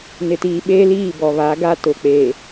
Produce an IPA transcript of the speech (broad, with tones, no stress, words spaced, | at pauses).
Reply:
nɪ˨tiː˨ɓeː˦liː˦˨ bɔ˨βa˨˦ ɡa˦tʊ˨k͡peː˨